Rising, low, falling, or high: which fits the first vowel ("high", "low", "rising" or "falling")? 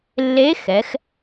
rising